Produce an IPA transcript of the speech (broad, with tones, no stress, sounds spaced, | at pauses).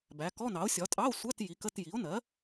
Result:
b æ˩˥ k ɔ˧˥˧ n ɑ˩˥ o̯ sʲ ɒ˩˥ tʼ ɑ˧˥˧ o̯ sʷ æ˧˥˧ t j i˩˥ k ə˧˥˧ t j i˩˥ o̯ n ɜ˩˥